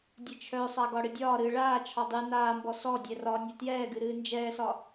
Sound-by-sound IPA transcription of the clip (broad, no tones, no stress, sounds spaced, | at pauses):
dʲ ɨ t͡ʃʰ œ sˤ a ɡ ɒ ɽ ɨ dʲ ɒː ɾ ɨː ɭ aː t͡ʃʰ ɒ dˤ ɨ n aː m b ɔ s ɔ dʲ ɛ r ɒ nʲ ɛ t j ɛː ɡ ɨ ɾ ɨː n d͡ʒ ɛː s ɒ